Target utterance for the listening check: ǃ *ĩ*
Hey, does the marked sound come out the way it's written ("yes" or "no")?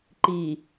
no